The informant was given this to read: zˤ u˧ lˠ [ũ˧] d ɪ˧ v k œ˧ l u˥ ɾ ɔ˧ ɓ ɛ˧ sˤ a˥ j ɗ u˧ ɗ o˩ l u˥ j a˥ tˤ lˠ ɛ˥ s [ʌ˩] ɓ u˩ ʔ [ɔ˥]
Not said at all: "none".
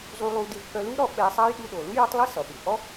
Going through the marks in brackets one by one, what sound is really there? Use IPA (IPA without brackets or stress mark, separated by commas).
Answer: u˧, ʌ˩, ɔ˥